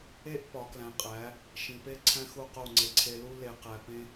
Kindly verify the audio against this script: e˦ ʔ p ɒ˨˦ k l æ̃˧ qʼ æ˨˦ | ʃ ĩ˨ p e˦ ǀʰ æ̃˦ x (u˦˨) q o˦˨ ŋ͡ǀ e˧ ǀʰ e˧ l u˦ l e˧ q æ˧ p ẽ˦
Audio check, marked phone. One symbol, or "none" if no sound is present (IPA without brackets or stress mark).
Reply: u˦˨